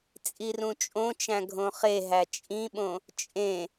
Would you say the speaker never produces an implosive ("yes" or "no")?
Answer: no